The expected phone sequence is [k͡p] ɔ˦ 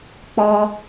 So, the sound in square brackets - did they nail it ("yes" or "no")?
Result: yes